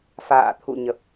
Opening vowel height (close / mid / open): open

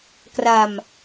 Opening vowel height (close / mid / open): open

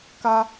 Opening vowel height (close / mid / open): open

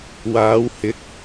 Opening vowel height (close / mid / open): open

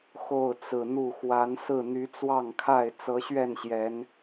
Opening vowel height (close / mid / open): mid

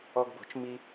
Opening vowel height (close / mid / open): mid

